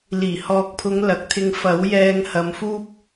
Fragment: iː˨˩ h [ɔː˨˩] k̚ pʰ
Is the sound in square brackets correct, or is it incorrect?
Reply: incorrect